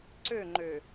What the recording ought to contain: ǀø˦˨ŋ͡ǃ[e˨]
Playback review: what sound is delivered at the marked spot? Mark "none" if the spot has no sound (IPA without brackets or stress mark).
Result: ø˨